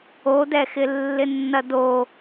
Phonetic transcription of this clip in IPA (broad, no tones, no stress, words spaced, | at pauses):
odɛxɪ lːɪnːɐdo